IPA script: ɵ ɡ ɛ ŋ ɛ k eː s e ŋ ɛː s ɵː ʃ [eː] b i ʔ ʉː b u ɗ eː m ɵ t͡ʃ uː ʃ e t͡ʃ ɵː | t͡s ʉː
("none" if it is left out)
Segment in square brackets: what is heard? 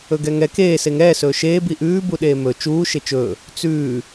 eː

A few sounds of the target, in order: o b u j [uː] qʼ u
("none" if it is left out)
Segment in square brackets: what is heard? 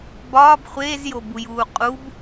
uː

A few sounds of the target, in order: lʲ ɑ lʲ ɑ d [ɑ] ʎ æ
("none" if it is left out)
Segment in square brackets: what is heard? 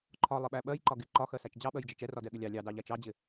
ɑ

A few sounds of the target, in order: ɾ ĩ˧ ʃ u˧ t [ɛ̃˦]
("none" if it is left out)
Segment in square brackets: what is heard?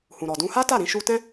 ɛ̃˦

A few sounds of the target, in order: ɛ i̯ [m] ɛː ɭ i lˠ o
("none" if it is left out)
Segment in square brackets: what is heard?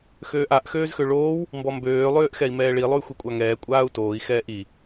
m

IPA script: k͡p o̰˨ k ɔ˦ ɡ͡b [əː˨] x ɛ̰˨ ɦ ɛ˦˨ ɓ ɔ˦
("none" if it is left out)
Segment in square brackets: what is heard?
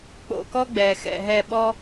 ɛː˨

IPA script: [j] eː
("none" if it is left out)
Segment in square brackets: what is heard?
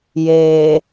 j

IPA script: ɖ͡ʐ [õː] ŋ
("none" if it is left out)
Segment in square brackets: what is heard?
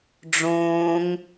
õː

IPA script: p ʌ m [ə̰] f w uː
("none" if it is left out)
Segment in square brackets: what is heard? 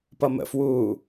ə̰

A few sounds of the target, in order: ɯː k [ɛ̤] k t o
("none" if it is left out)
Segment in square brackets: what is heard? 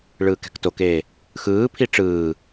ɛ̤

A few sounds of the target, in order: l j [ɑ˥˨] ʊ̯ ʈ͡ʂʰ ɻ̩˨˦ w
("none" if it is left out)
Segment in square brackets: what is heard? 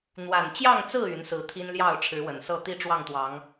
ɑ˥˨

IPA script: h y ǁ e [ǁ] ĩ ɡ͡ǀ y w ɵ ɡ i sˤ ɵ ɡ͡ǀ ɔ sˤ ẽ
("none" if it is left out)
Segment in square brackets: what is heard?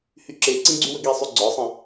ǀ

